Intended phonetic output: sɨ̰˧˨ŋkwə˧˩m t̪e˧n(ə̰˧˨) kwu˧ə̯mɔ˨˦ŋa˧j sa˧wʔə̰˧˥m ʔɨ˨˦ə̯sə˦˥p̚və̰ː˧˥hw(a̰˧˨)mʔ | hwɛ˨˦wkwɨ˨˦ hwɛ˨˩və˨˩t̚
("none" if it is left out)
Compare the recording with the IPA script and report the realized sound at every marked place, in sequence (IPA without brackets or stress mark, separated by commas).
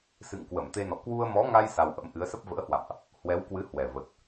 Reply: ɔ̰˧˨, a̰˧˨